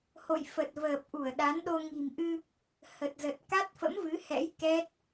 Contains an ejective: no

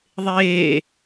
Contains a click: no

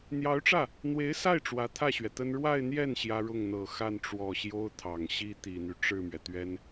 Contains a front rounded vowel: yes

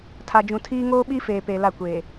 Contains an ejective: no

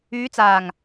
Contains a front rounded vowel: yes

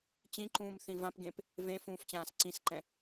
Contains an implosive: no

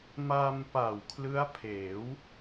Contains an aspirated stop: yes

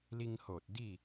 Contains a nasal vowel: no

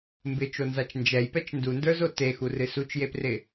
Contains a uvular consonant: no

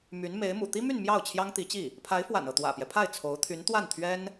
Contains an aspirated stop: yes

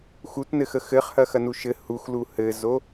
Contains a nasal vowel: no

